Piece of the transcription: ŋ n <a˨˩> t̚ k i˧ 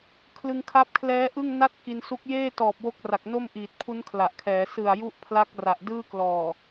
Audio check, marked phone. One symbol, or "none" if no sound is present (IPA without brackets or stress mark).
a˥˩